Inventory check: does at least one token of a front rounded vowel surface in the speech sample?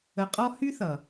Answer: yes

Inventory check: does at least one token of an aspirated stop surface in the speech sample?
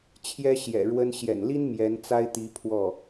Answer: yes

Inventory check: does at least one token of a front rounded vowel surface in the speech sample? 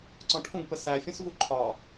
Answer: no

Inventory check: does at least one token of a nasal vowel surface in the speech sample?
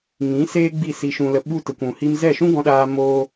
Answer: yes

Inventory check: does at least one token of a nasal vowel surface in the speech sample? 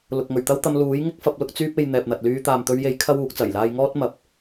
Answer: no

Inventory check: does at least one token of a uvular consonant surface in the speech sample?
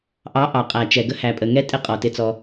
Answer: yes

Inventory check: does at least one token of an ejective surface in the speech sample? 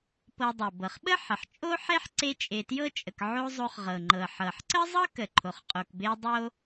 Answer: yes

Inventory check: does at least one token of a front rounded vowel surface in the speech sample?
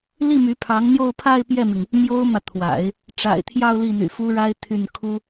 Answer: yes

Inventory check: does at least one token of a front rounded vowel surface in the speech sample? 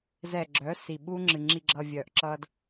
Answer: yes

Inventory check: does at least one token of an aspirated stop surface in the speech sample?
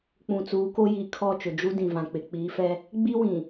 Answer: yes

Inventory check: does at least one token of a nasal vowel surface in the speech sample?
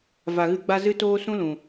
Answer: yes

